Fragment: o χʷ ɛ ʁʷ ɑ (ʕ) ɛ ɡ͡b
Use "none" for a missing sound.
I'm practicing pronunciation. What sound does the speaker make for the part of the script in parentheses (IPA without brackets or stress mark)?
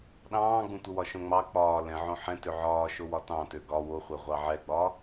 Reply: ʕ